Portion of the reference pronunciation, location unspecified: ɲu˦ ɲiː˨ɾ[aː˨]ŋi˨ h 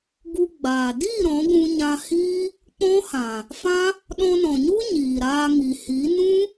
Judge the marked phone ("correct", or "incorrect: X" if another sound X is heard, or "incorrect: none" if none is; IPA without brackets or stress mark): incorrect: aː˧